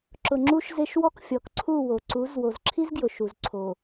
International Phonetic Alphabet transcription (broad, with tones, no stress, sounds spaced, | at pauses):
ǁ ʊ˨ ŋ͡ǁ u˦ ʃ z e˦ ʃ w ɔ˦ k fʲ ɔ˨ k ǀʰ u˦˨ w o˨ ǀ u˨˦ z w o˨ z ǁʰ i˦ z ɡ j ʊ˨ ʃ u˨ z ǀʰ o˨